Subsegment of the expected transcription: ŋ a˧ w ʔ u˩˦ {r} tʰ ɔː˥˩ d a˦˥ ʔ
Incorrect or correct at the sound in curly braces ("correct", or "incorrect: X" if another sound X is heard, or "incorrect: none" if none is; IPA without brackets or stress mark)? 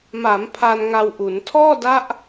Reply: incorrect: n